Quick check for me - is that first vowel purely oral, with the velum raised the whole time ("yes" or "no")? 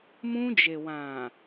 no